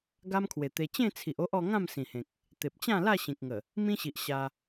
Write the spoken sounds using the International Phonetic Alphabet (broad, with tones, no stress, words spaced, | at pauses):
ɡa˦mkʰwe˨˩t̪e˧ t͡ɕẽ˥˧t͡sʰi˨ʔo˦ʔ ɔ˧ ŋã˥˧msĩ˨˩hẽ˨k̚ | t̪e˨p̚t͡ɕã˥˧la˥˧ ɕĩ˨k̚ŋə˨˩ | mĩ˦ɕi˨ʔ ɕa˧